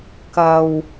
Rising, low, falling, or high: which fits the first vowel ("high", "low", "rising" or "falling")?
high